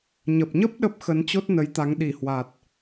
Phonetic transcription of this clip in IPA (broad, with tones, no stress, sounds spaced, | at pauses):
ɲ ə˨˩ p̚ ɲ ə˦˥ p̚ ɗ ə˦˥ p̚ x ə˨˦ n t͡ɕ o˦˥ t̚ n ə˨˦ j t̪ a˨˦ ŋ ɗ i˧˩ h w a˨˩ t̚